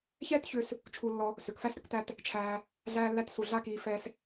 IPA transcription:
ç ɛː˦ t ç ʏ˧ s | t͡ʃʰ u˧ lː ɔ˧ | s ʏ˨ k f æ˦ s ɾ ʏ˦ k t æ˦ t | t͡ʃʰ æː˧ | ɮ æː˧ lː æ˧ t s u˨ ɮ a˦ k iː˧ f ɛː˦ s

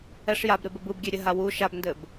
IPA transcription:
ɛ ʂ j a b ɾ e b ɘ b ɯ b ɡʲ e ɾʲ ɘ ɦ a w u ʃ a b n d ɘ b

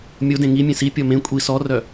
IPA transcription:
mʲ o d ẽ ŋ i mʲ ẽ s i pʲ ɔ m ẽ kʷʼ i s ɔ r œ

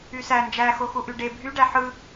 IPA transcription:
y s æ n d͡ʒ æ x o x u ʔ y ɖ e bʱ y ɖ æ ħ ɯ

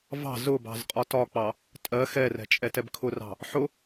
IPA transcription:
v ɑ̤ z ʊ b ɑ̤ z qʼ ɒ t ɒ k͡p ɑ | tʼ ɜ x ɛ r ɛ̤ t͡ʃʼ ɛ t ɛ b kʰ ʊ r ɑ̤ | ħ ʊ

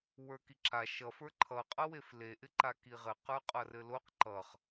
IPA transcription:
w ə˞ k i ǁ a ʃ ʌ f ə˞ ǃʰ ʌ qʼ ʌ w e f l e ʔ ɪ ǃ a k i ʁ ɘ q ə˞ qʼ ʌ r ɘ l o q ǃ ʌ χ

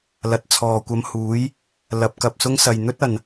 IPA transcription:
l ɐ˨˥ t̚ t͡sʰ ɔː˨ kʷ ɐ˧ m h uː˨˥ j | l ɐ˨˥ p̚ k ɐ˨ p̚ s ʊ˥ ŋ s ɐ˨ j n̪ ɵ˥ t̚ ɐ˨ n

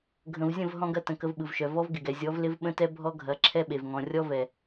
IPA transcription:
ɡʱ ə̃˨ v zʲ ə̃˦˨ v ɦ ɔ̃˦ ɡ ɐ˦ t ə̃˨ k ə˦ v ɓ ɯ˨ v ʃ œ˨ v ɔ˦ v ɡ ɪ˨ ɡ ɛ˨ zʲ ɔ˨˦ v l ɪ˦ v ɓ ə̃˦ t ɛ˦ bʱ ɔ˦ ɡʱ ɐ˨˦ ǁʰ ɛ˦ ɓ e˨ v ŋ ɔ̃˨ rʲ ɔ˦ v ɛ˨

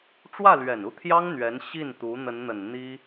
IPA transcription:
ʈ͡ʂ w ä˥˩ l ɥ ɛ˨˩ n u˥˩ t̪ʰ j ɑ˥ ŋ n̪ ɥ ɛ˧˥ n ɕ i˥˩ n t̪ u˧˥ n̪ ə˧˥ n n̪ ə˨˩ n n̪ i˥

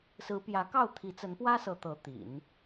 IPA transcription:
s ɹ̩˧˥ p j ä˧˥ k ɑ˥˩ ʊ̯ t̪ʰ i˧˥ t͡s ə˧˥ n p w ä˥ s ɤ˧˥ t̪ ɤ˧˥ t̪ ḭ˨˩˦ n

